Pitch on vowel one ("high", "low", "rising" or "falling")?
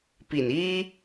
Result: low